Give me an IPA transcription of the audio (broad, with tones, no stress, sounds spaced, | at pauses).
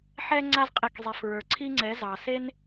ħ ɛ˦ ŋ͡ǀ a˧ z qʼ e˨ k zˤ e˨ f ɹ ə˞˨ ǀʰ i˦ ŋ͡ǀ ɛ˨˦ z ɑ˨ s e˦ n